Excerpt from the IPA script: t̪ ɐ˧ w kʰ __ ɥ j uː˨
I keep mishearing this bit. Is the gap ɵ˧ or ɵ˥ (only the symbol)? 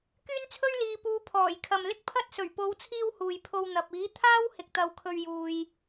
ɵ˧